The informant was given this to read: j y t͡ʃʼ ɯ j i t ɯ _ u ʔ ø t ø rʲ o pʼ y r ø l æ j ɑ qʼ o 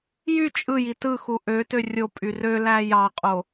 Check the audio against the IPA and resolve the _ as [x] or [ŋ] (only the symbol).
x